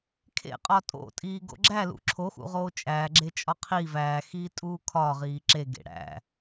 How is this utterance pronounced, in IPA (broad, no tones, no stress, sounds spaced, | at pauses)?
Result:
kʰ ḛ qʼ ɒ tʼ o̰ tʼ iː ɡ o̰ ɡ͡ǁ æ l ṵ ǁʰ o x ṵ ʁ oː t͡ʃʼ æː ɡ͡ǁ e t͡ʃʼ ɒ qʰ i v æː x iː tʼ uː kʰ ɒ ʁ iː ǁ e ɡ ḛ ɽ æ̰